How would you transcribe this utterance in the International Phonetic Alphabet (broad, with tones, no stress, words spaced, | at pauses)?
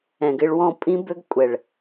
ɛ̃˨ɡɪ˧ɭ wɔ̃˧pʼĩ˦bø˦ɡkʷʼɛ˨ɭ